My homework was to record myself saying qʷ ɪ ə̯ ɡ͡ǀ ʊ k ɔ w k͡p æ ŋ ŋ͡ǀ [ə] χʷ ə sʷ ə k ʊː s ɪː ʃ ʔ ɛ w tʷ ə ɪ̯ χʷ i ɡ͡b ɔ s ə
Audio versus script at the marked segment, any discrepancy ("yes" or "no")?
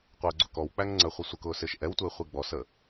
no